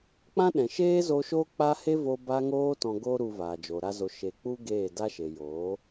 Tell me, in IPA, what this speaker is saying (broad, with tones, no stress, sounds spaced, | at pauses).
k͡p ã˦ ɗ ɛ̃˨ ʃ eː˦ z o˧ ʃ oː˦ k͡p a˦ h e˦ v o˧ b a˧ ŋ oː˧ t ɔ̃˧ ɡ o˦ ɾ u˧ v aː˨ d͡ʒ o˨ ɾ a˦ z o˧ ʃ e˧ k͡p u˦ ɡ eː˦˨ d a˦ ʃ e˨ j oː˨˦